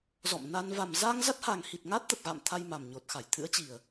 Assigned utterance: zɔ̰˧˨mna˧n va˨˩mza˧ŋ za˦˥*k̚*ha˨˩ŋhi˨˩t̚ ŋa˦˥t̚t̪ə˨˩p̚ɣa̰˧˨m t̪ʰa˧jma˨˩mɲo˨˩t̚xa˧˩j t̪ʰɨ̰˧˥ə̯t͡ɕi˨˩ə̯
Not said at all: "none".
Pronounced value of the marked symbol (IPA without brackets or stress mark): t̚